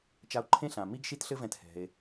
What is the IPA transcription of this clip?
t͡ʃ a˧ o̯ ǃʰ ẽ˥ ɬ ã˩ m i˥ ɡ ʃ i˥ t ɬ ɘ˥ v ɛ̃˧ t h ɛ̤˩ e̯

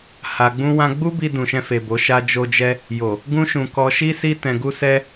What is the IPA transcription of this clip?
h a˧ ɡ͡b ũ˦ w ã˦ ɡ͡b u˦ b i˧ d ũ˨ ʃ ɛ̃˧ f e˨ b o˨˦ ʃ a˦ d͡ʒ o˧ d͡ʒ ɛ˧ | j o˨ | ɡ ũ˦ ʃ ũ˧ k ɔ˧ ʃ i˦ s i˦ t ɛ̃˧ ɡ u˦ s ɛ˦

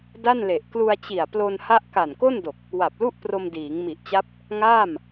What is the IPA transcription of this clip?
d a˥˩ n l e˨˩ ʔ k l u˧ a̯ t͡ɕ i˨˩ a̯ p l o˧ n h a˥˩ ʔ k a˨˩ n k o˥˩ n d o˨˩ k̚ | w a˨˩ p̚ l u˥˩ ʔ p r o˧ m d iː˩˦ ŋ m i˨˩ ʔ t͡ɕ a˦˥ p̚ | ŋ aː˥˩ m

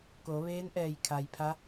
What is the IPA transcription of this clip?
k o˩˧ ʋ eː˧˥ n ʔ ɛː˧˩ j kʰ a˩ j pʰ a˧˥

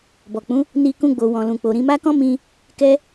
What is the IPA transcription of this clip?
b ɔ˨ k͡p ũ˨˦ | n i˧ k ũ˧ ɡ͡b o˨ w ɔ̃˨ l ũ˨ k͡p o˨ ɾ ĩ˧ m a˦ k ɔ̃˦ m ĩ˧ | k ɛ˦

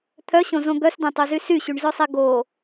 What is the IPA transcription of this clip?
t̪ʰ œ ɕ õ z õ ɡ œ s d ɛ̃ tˤ o z y s y ɕ y ɳ z œ sˤ ɛ ɡ o

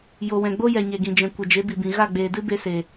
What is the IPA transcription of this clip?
j o˨ w ɛ̃˨ ɡ͡b o˦ j ɛ˨ ɲ e˨ ɡ ĩ˨ d͡ʒ ɛ̃˨ kʷ ə˨ d͡ʒ e˨˦ b i˨ b ĩ˨ ɣ a˦˨ ɡ͡b eː˨ d ɨ˦ b e˧ s e˨

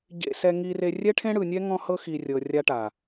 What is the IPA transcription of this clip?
ɟ ḛ˧ s ɛ˧ ŋ i˧ r e˧ rʲ ɛ˦ ʈʰ ẽ˦ ɽ ɯ˨ nʲ ɛ˦ ŋ ɔ̃˦ h ɤ˦ x i˨ rʲ ɤ˨ rʲ a˦ ʈ a˨

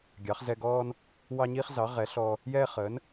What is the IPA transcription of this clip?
ɡʲ ɑ˩˧ χ z ɛ˧ ɡ ɔː˧ n | w ɑ˧ ɲ iː˧ χ z ɑ˩˧ ʁ ɛ˩˧ ɬ ɔ˧ | j ɛː˧ χ əː˩˧ n

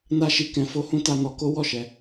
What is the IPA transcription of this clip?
n a˦ ʃ i˧ k ɛ̃˧ f o˦ h ũ˦ t a˧ n ɔ˧ k o˦ w ɔ˦˨ ʃ ɛ˧

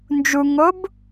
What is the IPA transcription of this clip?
n d͡ʒ u ŋ o b

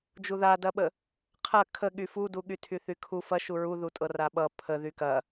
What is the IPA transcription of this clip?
d͡ʒ u ð a d ɐ ɓ ə | qʰ ɐ kʰ ə ɠ y f u d u ɠ y tʰ y θ y kʰ u f ɐ ʃ u ɹ u ð u tʼ ɤ r a ɓ ʌ pʰ ə ð y k ɐ

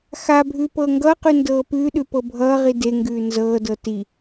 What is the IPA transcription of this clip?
x a bʱ ʉː p ɤː ŋ ɡ ʌː q ʉ n d ɤː p ʉː ɗ ʉ p ɤ bʱ ʌː ʁ i d e ŋ ɡ ʉː n z ɤː d ɤ t i

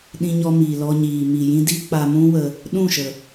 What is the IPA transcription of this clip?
ɗ ĩ˧ ɲ ɔ˧ m iː˨ l ɔ˧ ɲ iː˨ m i˨ j ĩ˦ d i˦ k͡p a˧ m ũ˦ w ə˧ | ɗ ũ˦˨ ʃ ə˨

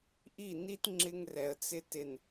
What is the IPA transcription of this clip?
ʔ i˦˨ n i˦ t ŋ͡ǁ ɪ˦ ŋ r ɛ˨ ə̯ t͡s ɪ˦ t ɪ˨ n

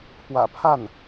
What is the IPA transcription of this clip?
pʰ w ä̰˨˩ pʰ a˥˩ n

